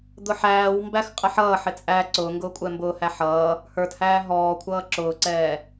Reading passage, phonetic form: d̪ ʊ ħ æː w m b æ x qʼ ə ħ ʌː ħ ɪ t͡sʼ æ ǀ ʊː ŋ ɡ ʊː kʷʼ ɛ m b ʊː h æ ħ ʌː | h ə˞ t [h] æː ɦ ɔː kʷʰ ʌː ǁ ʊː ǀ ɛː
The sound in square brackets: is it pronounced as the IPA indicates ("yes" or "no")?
yes